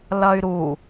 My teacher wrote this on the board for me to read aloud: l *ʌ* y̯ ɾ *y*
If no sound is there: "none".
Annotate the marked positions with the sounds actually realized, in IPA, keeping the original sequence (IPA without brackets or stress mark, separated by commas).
ʌ, u